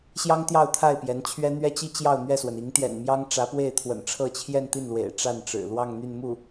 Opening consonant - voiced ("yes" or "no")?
no